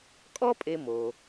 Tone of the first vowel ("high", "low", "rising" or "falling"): high